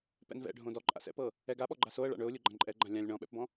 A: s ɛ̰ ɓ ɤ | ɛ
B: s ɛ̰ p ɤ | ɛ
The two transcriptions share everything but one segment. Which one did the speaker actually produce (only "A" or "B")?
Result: B